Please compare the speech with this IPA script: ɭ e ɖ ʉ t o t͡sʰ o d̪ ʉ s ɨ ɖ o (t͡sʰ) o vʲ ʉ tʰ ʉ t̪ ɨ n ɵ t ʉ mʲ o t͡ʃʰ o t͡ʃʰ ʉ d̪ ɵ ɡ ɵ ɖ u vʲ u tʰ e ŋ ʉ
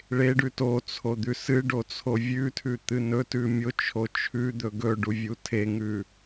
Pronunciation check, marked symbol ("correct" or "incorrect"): correct